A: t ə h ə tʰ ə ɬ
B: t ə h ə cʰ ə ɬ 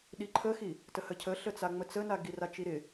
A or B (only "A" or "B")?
B